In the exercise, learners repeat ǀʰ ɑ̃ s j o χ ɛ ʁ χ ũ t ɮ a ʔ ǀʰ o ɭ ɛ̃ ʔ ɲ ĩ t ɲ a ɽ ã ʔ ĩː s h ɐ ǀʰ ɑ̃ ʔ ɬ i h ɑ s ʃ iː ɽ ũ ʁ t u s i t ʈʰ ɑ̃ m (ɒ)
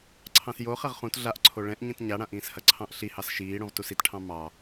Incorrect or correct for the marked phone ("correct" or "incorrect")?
incorrect